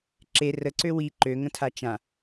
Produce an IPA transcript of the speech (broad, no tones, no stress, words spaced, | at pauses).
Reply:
ǁe rəǀø wi ǃøŋə̃tʰa t͡ʃã